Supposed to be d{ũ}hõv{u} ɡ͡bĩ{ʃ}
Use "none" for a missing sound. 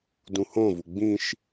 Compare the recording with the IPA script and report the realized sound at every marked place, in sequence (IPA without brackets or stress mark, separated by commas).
ũ, u, ʃ